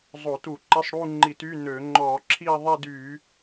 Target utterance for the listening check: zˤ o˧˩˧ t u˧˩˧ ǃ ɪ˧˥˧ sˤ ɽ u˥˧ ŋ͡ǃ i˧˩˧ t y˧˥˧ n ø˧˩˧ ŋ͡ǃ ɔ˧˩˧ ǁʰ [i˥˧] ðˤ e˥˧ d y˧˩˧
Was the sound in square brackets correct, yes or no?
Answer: yes